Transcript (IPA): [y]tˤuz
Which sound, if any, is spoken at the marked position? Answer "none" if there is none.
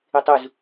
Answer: ɪ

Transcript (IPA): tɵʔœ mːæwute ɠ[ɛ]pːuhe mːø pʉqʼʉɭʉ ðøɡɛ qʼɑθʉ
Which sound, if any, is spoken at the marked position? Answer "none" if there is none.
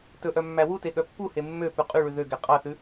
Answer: œ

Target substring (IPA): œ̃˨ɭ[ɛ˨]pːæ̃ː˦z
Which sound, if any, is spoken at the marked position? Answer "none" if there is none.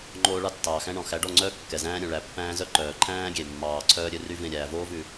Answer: æ˨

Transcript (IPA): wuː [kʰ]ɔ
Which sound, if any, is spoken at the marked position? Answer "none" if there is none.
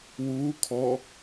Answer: kʰ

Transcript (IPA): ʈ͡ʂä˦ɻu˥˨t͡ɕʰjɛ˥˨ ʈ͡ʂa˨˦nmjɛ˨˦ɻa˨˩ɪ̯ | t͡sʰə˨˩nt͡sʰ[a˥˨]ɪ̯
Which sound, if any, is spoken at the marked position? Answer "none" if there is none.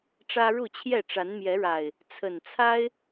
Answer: a˦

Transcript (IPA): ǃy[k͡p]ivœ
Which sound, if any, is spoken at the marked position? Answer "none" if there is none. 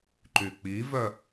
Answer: k͡p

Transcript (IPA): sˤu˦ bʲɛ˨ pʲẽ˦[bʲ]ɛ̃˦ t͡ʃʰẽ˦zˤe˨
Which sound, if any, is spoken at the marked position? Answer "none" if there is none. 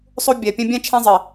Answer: bʲ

